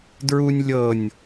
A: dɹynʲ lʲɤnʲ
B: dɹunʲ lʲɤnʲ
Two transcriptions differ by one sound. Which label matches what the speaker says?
B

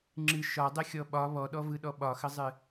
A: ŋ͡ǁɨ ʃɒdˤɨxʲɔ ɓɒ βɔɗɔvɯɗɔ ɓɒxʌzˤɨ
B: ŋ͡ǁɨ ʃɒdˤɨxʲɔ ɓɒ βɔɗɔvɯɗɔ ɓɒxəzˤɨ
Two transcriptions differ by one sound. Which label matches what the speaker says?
B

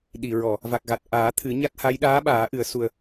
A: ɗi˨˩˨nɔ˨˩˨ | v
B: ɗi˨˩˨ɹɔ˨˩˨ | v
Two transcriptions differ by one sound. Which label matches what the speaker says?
B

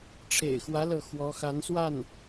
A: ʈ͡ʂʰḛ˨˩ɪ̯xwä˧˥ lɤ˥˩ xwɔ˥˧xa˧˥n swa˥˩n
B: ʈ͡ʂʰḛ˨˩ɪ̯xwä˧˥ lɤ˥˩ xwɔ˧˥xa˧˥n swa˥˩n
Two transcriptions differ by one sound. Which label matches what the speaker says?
B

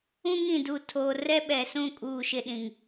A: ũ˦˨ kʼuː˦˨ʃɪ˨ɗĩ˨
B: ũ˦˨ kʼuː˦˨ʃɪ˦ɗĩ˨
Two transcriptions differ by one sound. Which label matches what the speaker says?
B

